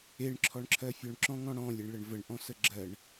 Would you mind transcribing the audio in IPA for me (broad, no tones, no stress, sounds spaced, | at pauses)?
e ɳ ǁʰ ɔ ɳ ǁʰ ɜ fʲ ɔ ɳ ǁ ɔ̃ ŋ ɔ̃ ɽ ɔ̃ lʲ e ɳ ɭ ə ɳ v ə ɳ ʔ ɔ̃ s ə ɡ͡ǁ ɜ ɳ